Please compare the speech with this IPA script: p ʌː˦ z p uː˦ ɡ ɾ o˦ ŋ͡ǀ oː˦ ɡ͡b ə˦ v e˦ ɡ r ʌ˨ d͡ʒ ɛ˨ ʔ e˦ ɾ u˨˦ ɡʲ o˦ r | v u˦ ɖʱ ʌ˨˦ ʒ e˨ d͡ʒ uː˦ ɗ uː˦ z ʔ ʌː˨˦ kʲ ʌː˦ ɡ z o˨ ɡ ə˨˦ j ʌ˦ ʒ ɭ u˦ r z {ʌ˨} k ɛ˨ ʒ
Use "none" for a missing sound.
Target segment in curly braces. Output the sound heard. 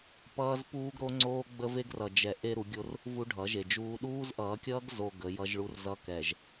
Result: ʌ˦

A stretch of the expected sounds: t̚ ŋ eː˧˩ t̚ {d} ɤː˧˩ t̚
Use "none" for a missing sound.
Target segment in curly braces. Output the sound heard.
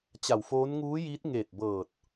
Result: b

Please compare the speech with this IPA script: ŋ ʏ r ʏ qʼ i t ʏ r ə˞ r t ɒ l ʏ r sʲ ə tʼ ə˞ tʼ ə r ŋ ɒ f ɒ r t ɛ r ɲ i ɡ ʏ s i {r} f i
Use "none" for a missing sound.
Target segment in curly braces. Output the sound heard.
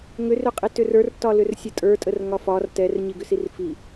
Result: r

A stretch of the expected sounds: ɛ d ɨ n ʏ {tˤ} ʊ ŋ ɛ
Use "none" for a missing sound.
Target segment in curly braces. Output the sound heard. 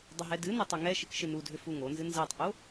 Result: tˤ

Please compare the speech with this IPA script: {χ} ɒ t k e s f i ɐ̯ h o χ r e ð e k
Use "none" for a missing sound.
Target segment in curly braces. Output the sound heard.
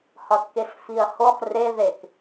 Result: h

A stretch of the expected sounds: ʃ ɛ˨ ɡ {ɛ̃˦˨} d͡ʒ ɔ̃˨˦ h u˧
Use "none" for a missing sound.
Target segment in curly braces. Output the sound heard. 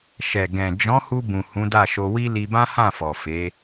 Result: ɛ̃˨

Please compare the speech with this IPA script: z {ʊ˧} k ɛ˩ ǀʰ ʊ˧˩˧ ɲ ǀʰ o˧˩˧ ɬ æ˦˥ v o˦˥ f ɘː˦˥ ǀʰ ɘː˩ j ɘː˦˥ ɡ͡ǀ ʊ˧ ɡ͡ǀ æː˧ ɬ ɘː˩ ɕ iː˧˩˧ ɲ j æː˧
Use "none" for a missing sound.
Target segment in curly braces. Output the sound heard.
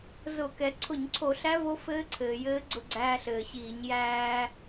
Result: ʊ˧˩˧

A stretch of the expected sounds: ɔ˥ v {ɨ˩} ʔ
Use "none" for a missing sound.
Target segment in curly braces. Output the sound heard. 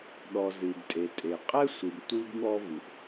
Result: ɨ˩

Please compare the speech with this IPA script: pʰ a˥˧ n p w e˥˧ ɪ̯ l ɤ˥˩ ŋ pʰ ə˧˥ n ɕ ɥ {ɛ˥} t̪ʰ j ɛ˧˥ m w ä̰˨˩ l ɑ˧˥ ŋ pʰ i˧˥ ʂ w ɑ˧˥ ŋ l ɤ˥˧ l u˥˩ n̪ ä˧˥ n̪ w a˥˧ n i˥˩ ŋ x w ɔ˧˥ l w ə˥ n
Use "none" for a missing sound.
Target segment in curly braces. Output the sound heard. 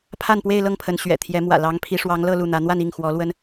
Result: ɛ̰˨˩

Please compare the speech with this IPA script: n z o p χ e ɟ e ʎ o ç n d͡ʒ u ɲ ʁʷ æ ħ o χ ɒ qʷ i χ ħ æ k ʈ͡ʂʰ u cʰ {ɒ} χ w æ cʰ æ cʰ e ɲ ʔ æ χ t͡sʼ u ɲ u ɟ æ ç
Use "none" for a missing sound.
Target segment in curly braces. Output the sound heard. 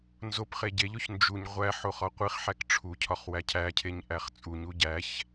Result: ɒ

